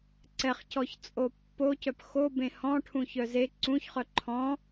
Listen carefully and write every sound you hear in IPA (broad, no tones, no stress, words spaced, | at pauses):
ǀɛχcɔçt͡sʼo pːocœp xobẽ hɔ̃ʈʰũçœ ze ǀũçχœ ǃʰɔ̃